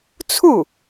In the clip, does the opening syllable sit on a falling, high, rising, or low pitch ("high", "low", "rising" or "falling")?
falling